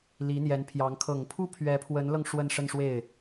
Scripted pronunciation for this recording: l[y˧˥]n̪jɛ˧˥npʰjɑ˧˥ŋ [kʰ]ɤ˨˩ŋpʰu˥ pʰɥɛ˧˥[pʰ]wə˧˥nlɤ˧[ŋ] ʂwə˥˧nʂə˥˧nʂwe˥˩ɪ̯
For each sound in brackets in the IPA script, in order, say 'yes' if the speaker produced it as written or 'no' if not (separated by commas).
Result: no, yes, yes, yes